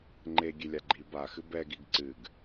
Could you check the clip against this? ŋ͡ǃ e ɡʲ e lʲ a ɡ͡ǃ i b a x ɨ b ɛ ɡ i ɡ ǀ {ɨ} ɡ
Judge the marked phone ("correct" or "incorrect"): correct